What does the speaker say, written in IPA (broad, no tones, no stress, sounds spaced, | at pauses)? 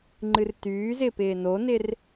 ŋ͡ǃ ɨ r t yː z ɪː p ɪː n o n ɪ r